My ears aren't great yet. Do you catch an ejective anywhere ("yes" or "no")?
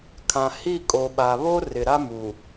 yes